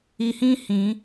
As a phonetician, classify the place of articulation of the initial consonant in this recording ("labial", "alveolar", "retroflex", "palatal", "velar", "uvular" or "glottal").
glottal